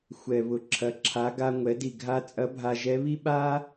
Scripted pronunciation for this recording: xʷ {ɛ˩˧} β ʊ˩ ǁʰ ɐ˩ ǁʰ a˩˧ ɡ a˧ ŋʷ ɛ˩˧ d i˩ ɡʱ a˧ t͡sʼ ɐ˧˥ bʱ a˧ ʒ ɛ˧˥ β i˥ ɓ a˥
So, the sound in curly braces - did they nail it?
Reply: no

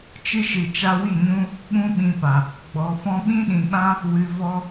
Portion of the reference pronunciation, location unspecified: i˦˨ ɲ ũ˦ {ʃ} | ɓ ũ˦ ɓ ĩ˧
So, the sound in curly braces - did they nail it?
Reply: no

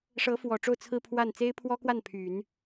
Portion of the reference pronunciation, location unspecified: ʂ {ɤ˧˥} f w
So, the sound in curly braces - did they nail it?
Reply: yes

